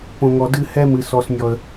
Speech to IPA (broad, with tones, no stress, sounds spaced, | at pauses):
p õ˨ ŋ ɔ˨ d ɨ˦˨ h ɛ˦ m ɨ˨ s ɔ˨ s nʲ ɔ˨ ə̯